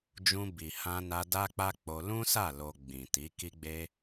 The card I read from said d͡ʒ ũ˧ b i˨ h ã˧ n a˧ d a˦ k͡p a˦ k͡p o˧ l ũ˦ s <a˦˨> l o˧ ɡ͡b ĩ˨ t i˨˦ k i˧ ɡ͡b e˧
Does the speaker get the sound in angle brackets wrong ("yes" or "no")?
no